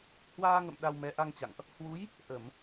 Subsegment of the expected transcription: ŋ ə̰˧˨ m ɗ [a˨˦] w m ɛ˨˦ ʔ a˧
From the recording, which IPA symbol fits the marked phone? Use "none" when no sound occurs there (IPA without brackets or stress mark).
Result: a˧